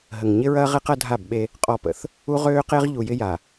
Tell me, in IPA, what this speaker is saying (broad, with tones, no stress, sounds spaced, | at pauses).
ɦ ə˨ ŋ ɲ ɪ˦ ɹ ɐː˦ ʁ e˦ q ɐ˦ dʱ a˦˨ b ɓ e˦ | qʼ ɔ˦˨ p ə̰˦ θ | u˦ ʁ øː˦ q e˦ ʁ ʎ u˨ j ɪ˦ j a˨